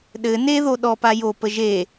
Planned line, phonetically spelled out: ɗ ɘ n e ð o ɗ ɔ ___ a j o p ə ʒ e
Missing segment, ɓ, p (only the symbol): p